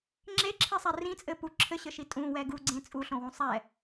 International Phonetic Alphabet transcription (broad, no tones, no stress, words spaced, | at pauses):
ŋ͡ǁeǁʰisˤɛ rĩt͡sʼɘ pu ǁʰɘɕɘʃi tʼũwɛ ɡuɡ͡ǀẽ t͡sʼuɬõwũ sˤɛ